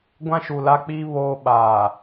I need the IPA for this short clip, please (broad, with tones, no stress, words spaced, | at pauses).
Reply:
ɡʷã˦ʃu˨la˦k͡piː˦ βoː˦ ɓaː˨